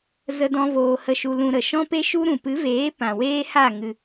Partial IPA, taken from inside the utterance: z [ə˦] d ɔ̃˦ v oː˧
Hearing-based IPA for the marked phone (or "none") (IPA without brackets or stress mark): ə˦